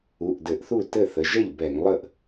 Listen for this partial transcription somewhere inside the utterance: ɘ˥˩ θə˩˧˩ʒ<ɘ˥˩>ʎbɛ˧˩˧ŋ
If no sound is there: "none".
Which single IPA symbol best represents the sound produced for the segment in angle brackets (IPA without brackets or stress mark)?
ɛ˥˩